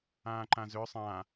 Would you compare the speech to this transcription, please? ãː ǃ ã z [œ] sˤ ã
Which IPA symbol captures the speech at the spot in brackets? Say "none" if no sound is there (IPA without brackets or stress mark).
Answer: ø